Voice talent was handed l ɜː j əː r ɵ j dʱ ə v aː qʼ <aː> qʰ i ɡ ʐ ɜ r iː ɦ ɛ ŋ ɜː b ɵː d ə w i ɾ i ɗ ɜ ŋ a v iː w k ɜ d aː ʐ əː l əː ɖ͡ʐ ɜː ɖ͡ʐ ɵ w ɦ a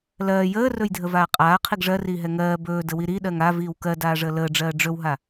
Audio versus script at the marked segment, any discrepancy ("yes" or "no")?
no